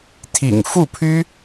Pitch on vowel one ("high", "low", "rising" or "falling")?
low